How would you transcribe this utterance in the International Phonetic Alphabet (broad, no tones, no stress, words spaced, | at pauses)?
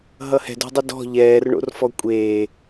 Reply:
ɦʌhɛ̤do̤dˤɨ dɔ̤ ʎɛːrɳo̰r fɔkʷʼeː